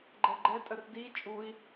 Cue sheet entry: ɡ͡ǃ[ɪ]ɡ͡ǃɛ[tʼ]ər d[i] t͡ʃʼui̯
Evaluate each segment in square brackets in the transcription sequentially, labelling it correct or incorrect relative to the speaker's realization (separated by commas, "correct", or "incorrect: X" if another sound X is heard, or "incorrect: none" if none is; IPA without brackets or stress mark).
incorrect: ɛ, correct, correct